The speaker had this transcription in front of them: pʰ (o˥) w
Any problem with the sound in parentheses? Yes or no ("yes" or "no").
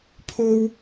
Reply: no